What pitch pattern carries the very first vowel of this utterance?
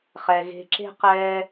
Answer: low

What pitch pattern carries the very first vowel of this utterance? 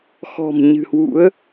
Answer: low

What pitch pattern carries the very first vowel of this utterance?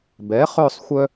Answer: rising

